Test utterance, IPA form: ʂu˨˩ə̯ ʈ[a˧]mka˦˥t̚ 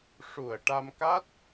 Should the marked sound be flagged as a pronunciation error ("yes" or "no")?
no